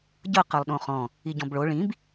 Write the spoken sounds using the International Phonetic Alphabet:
ɟ ɤ q ɤ lˠ ɗ õ χ ɔ̃ | i ɟ ɔ̃ b ɭ o ɭ ĩ b

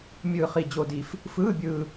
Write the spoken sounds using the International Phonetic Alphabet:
mʲ ɯː˧ χ i˧ d͡ʑ o˧ d i˧ f | f ɯː˧˥˧ bʲ ɯː˧

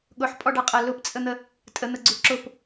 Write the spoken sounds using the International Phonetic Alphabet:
ɠ ʊ ħ pʼ ɔ ɖ a qʼ ɐ l ʊ p t͡sʼ ə n̪ ə | tʼ ə n̪ ə ɡ͡ǀ u ǁ ʊ p

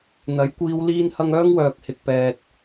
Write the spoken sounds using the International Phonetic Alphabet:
n̪ ɐ˨˥ j kʷ iː˧ w l iː˥ n h ɐ˥ ŋ œː˥ ŋ w œː˨ k̚ h ɪ˨ k̚ p ɛː˨ t̚

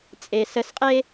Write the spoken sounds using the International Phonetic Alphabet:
t͡sʼ e s ə s qʼ e

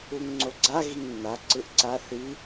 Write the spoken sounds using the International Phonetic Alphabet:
u ŋ ŋ͡ǀ o ɡ͡ǀ a ɣ i ŋ nː a ǀ ɯ ʔ ǀ a θ i

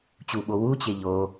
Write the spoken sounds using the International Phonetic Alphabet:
t͡ɕ u ɓ o w u t͡ɕ e ʎ o

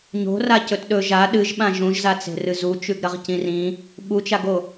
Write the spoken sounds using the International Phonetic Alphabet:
ɲ o̤ r a c ɵ t ɗ ɵ ʒ a ɗ ɨ ʒ ɓ ã ʒ ũ ʒ z a t͡s e̤ r ɨ z u t͡ʃ ʉ ɡ ɾ ɐ ʁ c ĩ r ĩ | ɓ u t͡ʃ a ɡ o

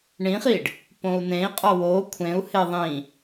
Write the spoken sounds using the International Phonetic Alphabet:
ɳ ĩ χ i ɖ | p õ u̯ n ẽ i̯ qʼ ɒ w o kʷʰ ẽ u̯ h e ðˤ ĩ

